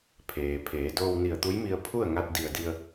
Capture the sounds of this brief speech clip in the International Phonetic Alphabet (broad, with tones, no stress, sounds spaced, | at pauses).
pʰ eː˩ pʰ eː˩˧ d oː˧ w n i˧˩ ə̯ t̪ u˧˥ j m i˧ ə̯ pʰ u˥˨ ə̯ ŋ a˧ t̚ d i˧˩ ə̯ d i˧ ə̯